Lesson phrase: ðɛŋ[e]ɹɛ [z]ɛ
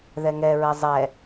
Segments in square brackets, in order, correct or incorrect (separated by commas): incorrect, incorrect